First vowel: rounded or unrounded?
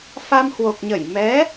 unrounded